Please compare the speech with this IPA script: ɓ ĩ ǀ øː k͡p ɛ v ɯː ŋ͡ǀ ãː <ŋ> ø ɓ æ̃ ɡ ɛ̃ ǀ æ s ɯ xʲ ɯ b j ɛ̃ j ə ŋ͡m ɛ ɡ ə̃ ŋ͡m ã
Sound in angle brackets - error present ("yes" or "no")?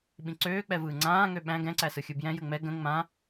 no